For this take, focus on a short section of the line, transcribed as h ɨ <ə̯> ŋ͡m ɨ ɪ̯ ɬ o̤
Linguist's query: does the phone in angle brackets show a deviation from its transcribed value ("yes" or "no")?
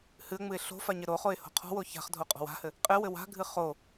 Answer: no